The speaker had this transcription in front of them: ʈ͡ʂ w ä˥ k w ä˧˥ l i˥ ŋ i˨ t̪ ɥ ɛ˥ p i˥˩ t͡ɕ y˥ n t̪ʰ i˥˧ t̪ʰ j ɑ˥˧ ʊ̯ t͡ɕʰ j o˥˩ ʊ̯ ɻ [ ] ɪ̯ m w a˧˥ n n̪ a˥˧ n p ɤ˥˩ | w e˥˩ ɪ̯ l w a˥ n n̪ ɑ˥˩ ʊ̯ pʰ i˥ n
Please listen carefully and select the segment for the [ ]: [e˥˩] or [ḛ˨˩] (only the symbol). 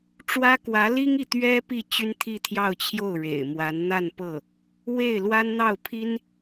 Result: ḛ˨˩